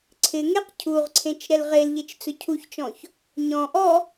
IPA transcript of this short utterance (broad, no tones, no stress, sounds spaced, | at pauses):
ǀʰ ɪ ŋ e q cʰ u ʁ ǀʰ ẽ t͡ʃ ɾ ɛ l ʁ e l ʎ e t͡ʃ t͡s ʊ cʰ u ç t͡ʃ ɔ̃ ç | ɲ ɔ̃ ʔ ɔ